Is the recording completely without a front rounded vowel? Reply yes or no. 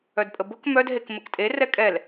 no